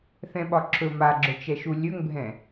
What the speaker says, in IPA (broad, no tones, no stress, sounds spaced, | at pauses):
θ ɛ̃ ɓ ɒ ǁʰ ɵ m a ɡ͡ǁ ɵ t͡ʃ ɛ ʃ u lʲ ɵ ŋ bʱ ɛ̃